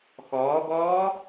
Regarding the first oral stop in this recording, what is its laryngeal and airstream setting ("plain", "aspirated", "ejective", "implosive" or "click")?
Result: plain